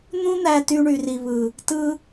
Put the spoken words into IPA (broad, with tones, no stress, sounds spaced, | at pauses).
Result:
n̪ ũ˦ n̪ æ˧ t y˧ ɳ y˨ r i˨ β ɯ˨ | t ɯ˧